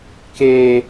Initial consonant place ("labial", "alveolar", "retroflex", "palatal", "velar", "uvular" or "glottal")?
velar